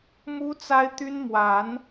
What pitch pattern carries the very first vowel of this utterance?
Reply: high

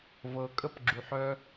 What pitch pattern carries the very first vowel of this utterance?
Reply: low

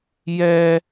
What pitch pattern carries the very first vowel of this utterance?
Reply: high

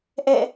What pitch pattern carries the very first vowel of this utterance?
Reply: falling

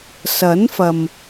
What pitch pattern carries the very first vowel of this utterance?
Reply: rising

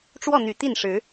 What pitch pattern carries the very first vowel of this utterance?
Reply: falling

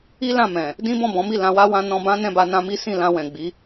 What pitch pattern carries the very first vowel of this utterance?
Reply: high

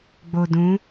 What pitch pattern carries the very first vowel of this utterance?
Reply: low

